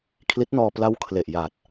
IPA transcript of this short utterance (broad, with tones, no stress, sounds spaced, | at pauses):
kʰ l i˦˥ t̚ n ɔː˧ p l a˦˥ w kʰ l e˨˩ ʔ j aː˨˩ t̚